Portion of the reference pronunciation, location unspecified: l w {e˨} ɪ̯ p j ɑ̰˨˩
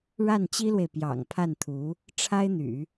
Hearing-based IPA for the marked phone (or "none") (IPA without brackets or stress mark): e˨